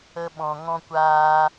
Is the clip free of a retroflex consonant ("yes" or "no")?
yes